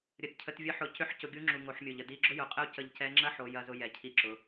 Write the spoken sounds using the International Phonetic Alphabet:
ɾʲ ə˩ d cʰ ə˩˧ t vʲ ə˧˥ ħ ʊ˩˧ c ʏ˧ ħ c ʊ˩˧ ɡʲ u˧˥ ŋ͡ǁ u˩ ŋ o˩˧ ħ mʲ o˩ ʎ ə˩ d i˧˥ ɡ͡ǁ ʊ˥ j ʊ˩˧ qʼ ə˥ u̯ c ə˧ ʎ c ɛ˧˥ ŋ͡ǁ ɐ˥ ħ o˩˧ j ɐ˧ z ʊ˧ j ɛ˩ cʰ i˧ ǁ ʊ˩˧

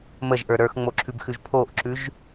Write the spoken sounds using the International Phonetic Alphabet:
m ə ʒ ʔ ə˞ ɾ ə˞ x ŋ͡m o ǁʰ ʉ b x ʉ ʒ pʰ o ʔ ǁ ʉ ʒ

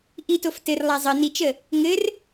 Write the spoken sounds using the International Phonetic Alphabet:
ʔ i t o f t ɘ r lˠ a zˤ ə n i t͡ʃ ə | ŋ ɘ r

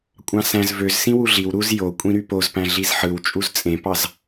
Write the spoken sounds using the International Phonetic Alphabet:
kʷʼ ɑ̃ s æ̃ z v ø z s ĩ w u ɮ i w ɾ u z j o kʷʼ ĩ ɾ y p o z p æ̃ ɮ i z ħ ɯ w t͡ʃʼ u z t͡sʼ ẽ p ɑ z

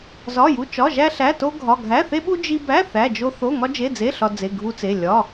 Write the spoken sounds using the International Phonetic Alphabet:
z ɒ˧˥˧ j u˧˥˧ t͡ʃ ɒ˧˥˧ ʒ æ˥ ɬ æ˧˥˧ t o˥ ɡʱ ɒ˧˥˧ ɡʱ æ˧˥˧ θ e˥ ɓ u˥ d͡ʒ i˥ b æ˧˥˧ θ æ˧˥˧ d͡ʒ o˥ θ o˧˥˧ ŋ ɒ˥ d͡ʒ e˧˥˧ d͡z e˧˥˧ ɬ ɒ˥ d͡z e˧˥˧ ɡʱ u˥ t͡s e˧˥˧ lʲ ɒ˧˥˧

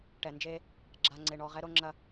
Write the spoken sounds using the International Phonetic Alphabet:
ʈ ɛ˨ n d͡ʒ e˦ | ɡ͡ǁ a˦ ŋ͡ǀ e˦ ɳ ɔ˦ ʁ ɛ˦ ɾ o˦ ŋ͡ǁ ɐ˦

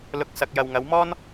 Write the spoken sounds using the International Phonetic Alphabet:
l ʊ˨˥ k̚ s ɐ˨ k̚ j ɐ˨ w ŋ ɐ˨˥ w m ɔː˥ n

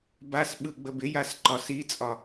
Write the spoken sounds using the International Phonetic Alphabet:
b a s ɓ ɯ ɡ͡b ə b ɪ j a s ǃ ɒ s i t͡sʼ ɒ

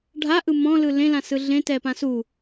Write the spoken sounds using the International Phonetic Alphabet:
ɖʱ a ʔ ɯ m ɔ̃ l ɯ l ẽ l ã s ɯ ɮ ẽ t ɛ p ã s u

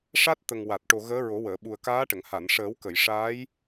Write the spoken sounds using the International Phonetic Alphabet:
ʂ a˦˥ t̚ t̪ ə˨˩ ŋ w a˨˩ t̚ ʈ o˨˩ ɣ əː˧˥ ɹ o˨˩˦ w əː˨˩˨ ɓ u˨˩ ə̯ k aː˧˥ ʈ ə˨˩˨ ŋ h a˨˩˨ n ʂ əː˨˩˦ w k ə˨˩˨ j ʂ aː˧˥ j

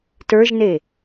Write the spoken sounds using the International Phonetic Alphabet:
t ə˞ ʒ n e

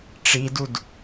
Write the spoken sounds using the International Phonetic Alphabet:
ʈ͡ʂ i d u d

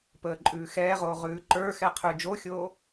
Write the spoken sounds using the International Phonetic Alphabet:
p əː ǃʼ ʉː x ɛː ʁ oː ʁ ʉː ǃ ə˞ x ɛ qʰ ʉ d͡ʒ o xʲ oː

